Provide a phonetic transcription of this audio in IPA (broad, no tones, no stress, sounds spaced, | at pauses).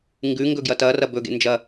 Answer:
ŋ ɡ ʉ ŋ ɡ ɵ ɡ j ɐ t ɐ r ɐ b ɵ ɡ ḛ n d͡ʒ ɐ